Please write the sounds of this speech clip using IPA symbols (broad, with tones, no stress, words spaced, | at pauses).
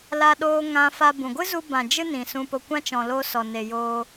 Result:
la˧ɗoː˧ ŋã˧fa˧ bũ˨ɡʷɨ˦ zu˧bã˨ d͡ʒɨ˦nĩ˨ sũ˧po˧kʷã˦ t͡ʃɔ̃˨lo˧ sɔ˨ne˨joː˧